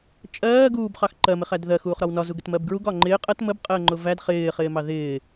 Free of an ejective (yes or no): no